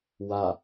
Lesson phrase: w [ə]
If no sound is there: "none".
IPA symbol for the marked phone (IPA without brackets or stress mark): a